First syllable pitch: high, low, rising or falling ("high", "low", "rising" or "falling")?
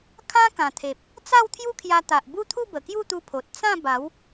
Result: high